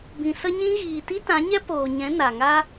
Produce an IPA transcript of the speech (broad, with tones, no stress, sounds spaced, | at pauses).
b ĩ˨ s ə˧ ɲ ĩ˧ ɣ iː˨ t i˦ t ã˨˦ ɲ ɛ˦ p oː˨ ɲ ɛ̃˨˦ n a˨ ŋ a˦